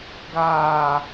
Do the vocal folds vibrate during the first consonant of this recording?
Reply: yes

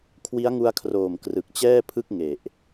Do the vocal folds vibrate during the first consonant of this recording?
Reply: no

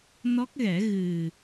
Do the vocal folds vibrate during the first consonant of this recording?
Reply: yes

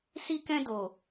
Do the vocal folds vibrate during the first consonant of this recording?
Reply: no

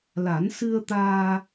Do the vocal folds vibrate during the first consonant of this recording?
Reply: yes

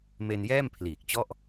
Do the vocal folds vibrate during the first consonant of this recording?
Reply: yes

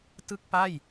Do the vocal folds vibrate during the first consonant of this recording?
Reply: no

